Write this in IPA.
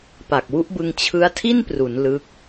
pa˨˩k̚wu˦˥ʔbɯ˧ŋ t͡ɕʰɯ˦˥a̯tʰi˥˩npru˩˦n lɯ˦˥k̚

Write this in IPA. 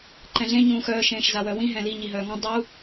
ǃɛ̃ɮẽ ɲũːxœː ʃẽːʃzawœwĩ ɦɛ̃li ɲiɦœːŋɔ̃ dˤu

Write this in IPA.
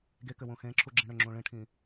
ɡekʏwũ xẽǁʰuɡ͡ǁĩ ɽʏŋ͡ǁũ ɭĩʈʰĩ

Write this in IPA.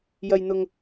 jɐ˥jn̪ʊ˥ŋ

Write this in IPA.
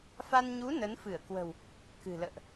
fa˧nɲu˨˦ nə˨˦n fɨ˧˩ə̯kwə̤˨˩w | kɨ̤˨˩lə̰ː˧˨ʔ

